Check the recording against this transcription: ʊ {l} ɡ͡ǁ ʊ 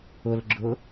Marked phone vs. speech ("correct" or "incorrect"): correct